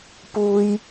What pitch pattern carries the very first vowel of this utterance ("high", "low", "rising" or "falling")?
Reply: high